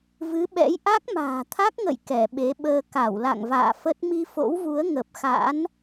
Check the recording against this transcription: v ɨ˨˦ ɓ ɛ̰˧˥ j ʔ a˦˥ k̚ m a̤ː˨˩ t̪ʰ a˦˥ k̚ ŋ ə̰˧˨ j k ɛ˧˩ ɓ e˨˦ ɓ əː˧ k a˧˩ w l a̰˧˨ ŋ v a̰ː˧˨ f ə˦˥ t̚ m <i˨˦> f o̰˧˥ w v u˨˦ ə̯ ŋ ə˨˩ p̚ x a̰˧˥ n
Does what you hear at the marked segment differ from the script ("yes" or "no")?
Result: yes